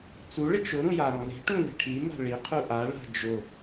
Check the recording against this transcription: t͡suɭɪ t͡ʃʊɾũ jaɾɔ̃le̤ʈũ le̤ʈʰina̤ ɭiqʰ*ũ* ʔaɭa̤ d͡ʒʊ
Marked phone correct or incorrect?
incorrect: u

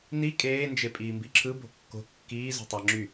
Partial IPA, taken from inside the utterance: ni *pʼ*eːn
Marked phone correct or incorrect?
incorrect: kʼ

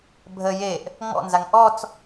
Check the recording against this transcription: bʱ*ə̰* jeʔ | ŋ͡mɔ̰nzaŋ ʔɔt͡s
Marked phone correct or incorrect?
incorrect: ə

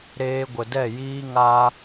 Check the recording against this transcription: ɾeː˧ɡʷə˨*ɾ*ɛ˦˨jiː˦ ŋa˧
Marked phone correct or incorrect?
incorrect: d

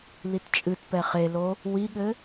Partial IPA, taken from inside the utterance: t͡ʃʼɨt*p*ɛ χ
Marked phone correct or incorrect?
correct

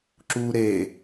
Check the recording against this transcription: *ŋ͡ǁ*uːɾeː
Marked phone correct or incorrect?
incorrect: ǁ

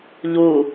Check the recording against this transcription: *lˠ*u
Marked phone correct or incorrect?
incorrect: ʎ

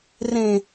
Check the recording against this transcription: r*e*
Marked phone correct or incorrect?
incorrect: ẽ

